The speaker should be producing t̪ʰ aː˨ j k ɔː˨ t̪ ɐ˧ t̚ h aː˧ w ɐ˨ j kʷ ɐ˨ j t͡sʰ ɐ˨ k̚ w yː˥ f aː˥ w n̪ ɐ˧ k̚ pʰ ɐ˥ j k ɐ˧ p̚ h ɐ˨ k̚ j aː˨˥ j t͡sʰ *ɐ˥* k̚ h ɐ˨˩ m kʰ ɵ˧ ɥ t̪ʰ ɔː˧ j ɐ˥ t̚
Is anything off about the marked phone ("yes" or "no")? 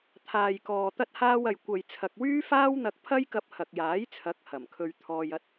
yes